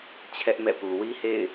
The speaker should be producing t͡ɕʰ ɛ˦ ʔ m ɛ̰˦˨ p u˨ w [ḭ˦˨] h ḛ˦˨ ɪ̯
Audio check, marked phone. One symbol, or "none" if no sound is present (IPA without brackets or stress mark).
i˦